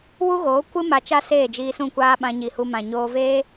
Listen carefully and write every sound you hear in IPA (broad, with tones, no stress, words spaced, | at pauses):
wu˦ɣoː˨˦ kʷɨ˦ ma˧t͡ʃa˦ seː˦˨d͡ʒiː˧sũ˦˨kʷaː˦ ɓã˧ɲi˨hu˧ mã˨ ɲoː˧veː˦